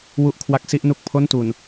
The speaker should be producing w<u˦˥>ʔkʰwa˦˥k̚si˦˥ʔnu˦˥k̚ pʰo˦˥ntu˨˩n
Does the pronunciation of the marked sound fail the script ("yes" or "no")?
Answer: no